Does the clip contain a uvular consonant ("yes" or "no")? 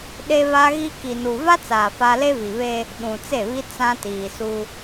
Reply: no